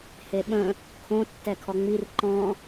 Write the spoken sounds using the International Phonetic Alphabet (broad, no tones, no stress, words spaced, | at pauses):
heɓə̃ | kʰõ tːɛkʰɔŋ͡mir ǃɔ̃